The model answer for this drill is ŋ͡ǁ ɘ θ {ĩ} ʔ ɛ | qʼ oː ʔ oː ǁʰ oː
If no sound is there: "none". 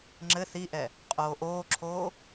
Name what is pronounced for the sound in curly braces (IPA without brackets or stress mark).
i